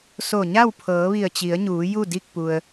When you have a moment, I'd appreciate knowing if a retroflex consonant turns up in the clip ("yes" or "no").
no